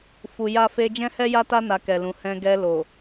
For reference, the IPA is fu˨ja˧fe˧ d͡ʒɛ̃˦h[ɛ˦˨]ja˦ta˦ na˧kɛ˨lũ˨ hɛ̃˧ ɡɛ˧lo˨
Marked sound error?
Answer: yes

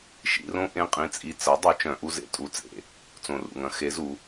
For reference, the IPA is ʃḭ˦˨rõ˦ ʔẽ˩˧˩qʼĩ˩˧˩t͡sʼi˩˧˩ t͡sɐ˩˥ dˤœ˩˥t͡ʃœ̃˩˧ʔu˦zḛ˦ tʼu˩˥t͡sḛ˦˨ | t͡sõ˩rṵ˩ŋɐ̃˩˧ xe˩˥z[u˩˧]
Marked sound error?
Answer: no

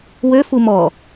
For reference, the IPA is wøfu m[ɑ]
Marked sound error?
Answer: yes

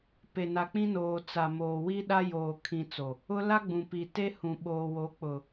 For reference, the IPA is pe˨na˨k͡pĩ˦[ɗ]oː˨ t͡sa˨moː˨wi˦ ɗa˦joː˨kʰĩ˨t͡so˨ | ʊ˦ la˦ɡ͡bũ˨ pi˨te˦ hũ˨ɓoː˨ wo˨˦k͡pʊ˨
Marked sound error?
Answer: yes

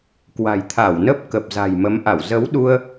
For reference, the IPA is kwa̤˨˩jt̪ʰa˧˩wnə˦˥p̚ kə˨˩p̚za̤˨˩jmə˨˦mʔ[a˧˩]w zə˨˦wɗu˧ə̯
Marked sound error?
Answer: no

